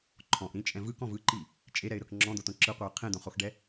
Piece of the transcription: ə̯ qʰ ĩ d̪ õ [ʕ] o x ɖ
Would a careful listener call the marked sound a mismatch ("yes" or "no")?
yes